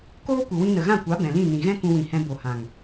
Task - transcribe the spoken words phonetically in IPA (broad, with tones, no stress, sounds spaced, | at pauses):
k oː˦ kʷ ɨ˨ w ĩ˧ n ə˨ ɣ ã˦˨ kʷ a˨˦ b ɛ̃˨ l ĩ˦˨ n ĩ˨ ɣ ɛ̃˦ k ũ˧ w ĩ˨ h ɛ̃˧ b o˨ h ã˨ ŋ